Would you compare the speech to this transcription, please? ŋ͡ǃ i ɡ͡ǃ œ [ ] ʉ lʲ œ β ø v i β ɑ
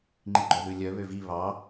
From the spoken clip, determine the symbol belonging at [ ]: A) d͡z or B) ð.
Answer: B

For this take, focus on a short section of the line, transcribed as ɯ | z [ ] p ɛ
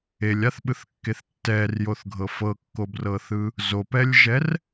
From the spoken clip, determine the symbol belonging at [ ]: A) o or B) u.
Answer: A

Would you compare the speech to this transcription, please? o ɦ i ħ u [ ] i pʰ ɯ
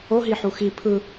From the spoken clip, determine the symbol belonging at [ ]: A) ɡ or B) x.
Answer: B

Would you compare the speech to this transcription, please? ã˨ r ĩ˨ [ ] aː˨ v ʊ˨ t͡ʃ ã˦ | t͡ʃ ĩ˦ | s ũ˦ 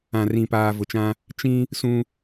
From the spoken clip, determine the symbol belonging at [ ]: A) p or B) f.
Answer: A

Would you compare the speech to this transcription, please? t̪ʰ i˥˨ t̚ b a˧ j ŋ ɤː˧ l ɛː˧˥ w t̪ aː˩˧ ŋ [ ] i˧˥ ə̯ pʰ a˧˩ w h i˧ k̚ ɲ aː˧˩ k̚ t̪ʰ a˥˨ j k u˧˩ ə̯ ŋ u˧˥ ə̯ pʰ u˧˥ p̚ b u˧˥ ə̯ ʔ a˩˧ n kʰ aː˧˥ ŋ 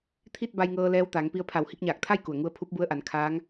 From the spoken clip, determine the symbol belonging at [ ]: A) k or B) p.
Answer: B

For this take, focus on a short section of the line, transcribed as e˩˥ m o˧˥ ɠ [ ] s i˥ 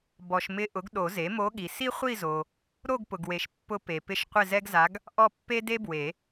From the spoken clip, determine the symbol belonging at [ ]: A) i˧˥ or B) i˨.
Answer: B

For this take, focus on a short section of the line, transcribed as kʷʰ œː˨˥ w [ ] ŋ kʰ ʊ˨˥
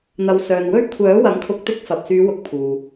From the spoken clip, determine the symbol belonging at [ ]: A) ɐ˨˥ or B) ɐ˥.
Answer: A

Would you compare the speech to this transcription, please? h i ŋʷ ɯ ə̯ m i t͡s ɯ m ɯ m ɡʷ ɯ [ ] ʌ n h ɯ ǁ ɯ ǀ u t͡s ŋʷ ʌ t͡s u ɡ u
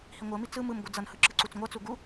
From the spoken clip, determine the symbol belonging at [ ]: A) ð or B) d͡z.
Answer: B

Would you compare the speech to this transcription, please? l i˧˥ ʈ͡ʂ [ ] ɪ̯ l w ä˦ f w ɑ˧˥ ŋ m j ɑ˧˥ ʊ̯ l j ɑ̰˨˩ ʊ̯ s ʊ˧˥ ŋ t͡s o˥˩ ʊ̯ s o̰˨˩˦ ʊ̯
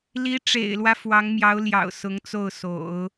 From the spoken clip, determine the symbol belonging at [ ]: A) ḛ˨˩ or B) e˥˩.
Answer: A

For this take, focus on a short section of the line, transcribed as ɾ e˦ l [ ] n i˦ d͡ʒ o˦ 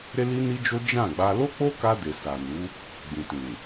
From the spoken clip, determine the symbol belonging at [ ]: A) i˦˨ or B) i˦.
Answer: B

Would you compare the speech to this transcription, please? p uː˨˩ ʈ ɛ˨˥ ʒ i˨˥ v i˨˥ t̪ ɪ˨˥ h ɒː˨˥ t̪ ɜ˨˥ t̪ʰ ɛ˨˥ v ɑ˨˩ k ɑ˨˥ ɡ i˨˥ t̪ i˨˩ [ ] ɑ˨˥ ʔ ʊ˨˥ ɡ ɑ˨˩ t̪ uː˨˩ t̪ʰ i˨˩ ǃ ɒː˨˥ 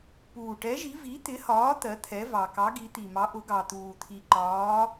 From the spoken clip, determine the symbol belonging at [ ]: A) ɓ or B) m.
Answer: B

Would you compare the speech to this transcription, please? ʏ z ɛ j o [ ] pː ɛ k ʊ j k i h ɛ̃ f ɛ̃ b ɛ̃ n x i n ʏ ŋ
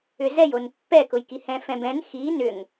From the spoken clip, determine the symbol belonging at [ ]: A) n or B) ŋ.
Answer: A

